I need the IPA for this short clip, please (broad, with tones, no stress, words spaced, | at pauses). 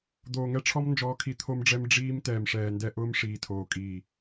d̪oː˨ŋɛ˦ʈ͡ʂʰɔ˦m nd͡ʒɔː˦kʰi˦ t̪ʰo˦mɖ͡ʐɛ˦m ɖ͡ʐiː˦m tɛː˨mʂɛː˨ndɛ˦ʔʊː˦m ʂiː˨tʰoː˨kʼiː˨